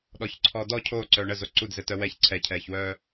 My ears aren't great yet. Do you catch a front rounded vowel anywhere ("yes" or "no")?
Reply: yes